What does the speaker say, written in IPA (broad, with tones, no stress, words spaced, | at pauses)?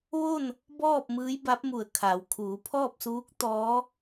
ʋo˥˨n | bɔː˥˨p̚ mɯː˧˥jba˧˥p̚mu˧˩ə̯ kʰa˩˧wkʰuː˩˧pʰɔː˥˨p̚suː˧˥k̚ t̪ɔː˧˥